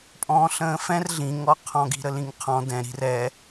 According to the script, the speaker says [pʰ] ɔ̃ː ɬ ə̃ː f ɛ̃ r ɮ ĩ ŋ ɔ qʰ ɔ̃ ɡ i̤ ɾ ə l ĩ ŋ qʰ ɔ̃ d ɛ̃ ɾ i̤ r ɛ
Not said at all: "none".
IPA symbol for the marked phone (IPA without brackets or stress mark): pʼ